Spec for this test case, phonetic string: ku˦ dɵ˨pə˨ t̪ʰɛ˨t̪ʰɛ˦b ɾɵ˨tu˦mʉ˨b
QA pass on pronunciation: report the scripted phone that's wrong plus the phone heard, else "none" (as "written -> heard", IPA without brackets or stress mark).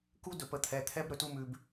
none